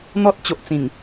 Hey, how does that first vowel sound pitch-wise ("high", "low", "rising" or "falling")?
high